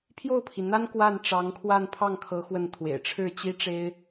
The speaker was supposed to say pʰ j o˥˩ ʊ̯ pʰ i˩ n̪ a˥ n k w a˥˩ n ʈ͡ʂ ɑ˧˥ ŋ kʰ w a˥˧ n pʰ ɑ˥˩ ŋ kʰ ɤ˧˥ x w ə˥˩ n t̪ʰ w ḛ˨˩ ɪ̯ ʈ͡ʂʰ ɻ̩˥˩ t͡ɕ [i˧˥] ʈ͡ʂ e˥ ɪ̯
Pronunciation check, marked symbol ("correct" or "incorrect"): incorrect